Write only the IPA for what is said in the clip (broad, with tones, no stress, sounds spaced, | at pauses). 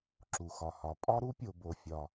ǁ u˩ x ɒ˩ h ɒ˩ pʼ ɒ˥ ɾ u˥ pʲ o˩ b o˩ fʲ ɒ˩